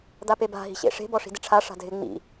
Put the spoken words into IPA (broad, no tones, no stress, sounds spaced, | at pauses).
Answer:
d̪ a p e b a̤ ɦ i̤ ɕ ḛ ʂ e̤ b ɔ ʂ i̤ d ɪ ʈ͡ʂʰ a ʂ a̤ dʱ ɪ ŋ͡m ḭ